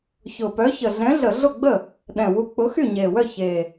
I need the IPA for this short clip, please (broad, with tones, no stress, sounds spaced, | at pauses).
ç ʊ˨˩ p œ˨˥ ç ə˨˩ ɮ ɛ̃˨˥ ɮ ə˧˩˧ ɮ ʊ˥˩ ɡ͡b ə˥˩ | ɗ ɛ̃˨˩ w u˨˥ k͡p ʊ˨˥ x y˥˩ ɲ e˨˩ w œ˥˩ ç e˨˩